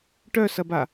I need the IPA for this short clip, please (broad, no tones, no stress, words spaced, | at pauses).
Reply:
ʈœsɐba